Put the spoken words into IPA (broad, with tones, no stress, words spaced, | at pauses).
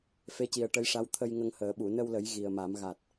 fe˧˥ci˨˩ə̯ʈə˧˥jʂa˧˥w t̪ʰə˧jŋə˧ŋhəː˨˩˦ ɓu˨˩˨nə˧wlə˨˩˦j ɣi˨˩ə̯ma˨˩˦m ɣa˨˩t̚